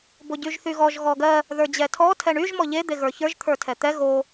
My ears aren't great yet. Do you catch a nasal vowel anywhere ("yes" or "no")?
no